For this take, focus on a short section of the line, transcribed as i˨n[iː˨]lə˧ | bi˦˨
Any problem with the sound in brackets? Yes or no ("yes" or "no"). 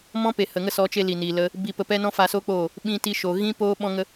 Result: no